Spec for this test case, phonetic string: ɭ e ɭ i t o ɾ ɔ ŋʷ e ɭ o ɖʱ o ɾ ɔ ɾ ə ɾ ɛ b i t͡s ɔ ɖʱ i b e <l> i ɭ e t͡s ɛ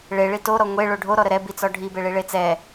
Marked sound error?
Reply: yes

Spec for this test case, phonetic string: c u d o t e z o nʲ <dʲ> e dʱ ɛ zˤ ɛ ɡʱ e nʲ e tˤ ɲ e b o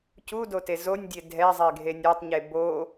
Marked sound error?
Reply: no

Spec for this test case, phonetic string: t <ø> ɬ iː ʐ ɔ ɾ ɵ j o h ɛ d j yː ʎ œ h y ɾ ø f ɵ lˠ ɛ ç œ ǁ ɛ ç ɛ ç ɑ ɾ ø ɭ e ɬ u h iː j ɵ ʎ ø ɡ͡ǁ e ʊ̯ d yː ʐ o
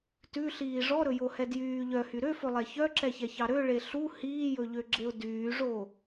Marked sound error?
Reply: yes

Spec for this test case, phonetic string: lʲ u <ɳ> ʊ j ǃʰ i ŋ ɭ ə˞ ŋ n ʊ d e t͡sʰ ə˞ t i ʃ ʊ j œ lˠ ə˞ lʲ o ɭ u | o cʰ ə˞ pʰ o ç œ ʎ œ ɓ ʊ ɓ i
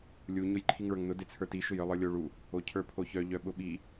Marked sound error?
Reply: yes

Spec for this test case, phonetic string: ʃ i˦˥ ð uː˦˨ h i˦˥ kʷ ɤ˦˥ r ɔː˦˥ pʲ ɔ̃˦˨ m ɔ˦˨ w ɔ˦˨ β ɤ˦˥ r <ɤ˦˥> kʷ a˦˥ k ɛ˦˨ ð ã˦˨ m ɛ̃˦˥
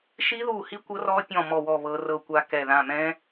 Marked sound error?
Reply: yes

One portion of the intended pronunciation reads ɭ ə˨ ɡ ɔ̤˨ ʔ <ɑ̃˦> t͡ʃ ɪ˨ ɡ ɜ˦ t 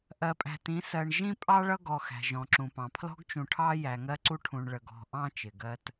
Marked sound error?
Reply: no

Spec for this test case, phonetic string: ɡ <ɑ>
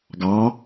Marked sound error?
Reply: no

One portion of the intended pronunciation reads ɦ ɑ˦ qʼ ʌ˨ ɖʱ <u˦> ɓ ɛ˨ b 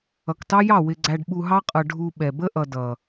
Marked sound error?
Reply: yes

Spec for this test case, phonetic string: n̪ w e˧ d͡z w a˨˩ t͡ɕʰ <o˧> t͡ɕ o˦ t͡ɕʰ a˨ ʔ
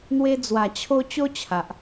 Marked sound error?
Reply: no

